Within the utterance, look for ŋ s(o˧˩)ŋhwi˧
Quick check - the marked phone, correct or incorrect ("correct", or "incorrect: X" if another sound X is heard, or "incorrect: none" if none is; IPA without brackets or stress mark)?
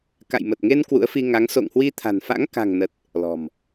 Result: incorrect: o̰˧˨